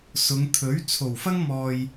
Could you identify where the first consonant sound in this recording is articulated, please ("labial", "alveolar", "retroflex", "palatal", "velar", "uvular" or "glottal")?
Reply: alveolar